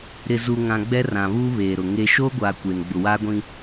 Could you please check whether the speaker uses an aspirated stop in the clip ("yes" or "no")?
no